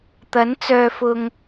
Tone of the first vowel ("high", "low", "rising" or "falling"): rising